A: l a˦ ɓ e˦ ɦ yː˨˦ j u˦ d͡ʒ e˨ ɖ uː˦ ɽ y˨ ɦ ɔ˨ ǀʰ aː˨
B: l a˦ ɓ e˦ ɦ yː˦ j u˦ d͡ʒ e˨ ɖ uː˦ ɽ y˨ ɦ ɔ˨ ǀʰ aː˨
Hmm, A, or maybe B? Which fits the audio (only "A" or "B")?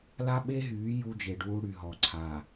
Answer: A